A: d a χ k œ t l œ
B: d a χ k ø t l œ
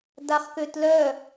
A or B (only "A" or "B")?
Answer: B